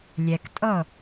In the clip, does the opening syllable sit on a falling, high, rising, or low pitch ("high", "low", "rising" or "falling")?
low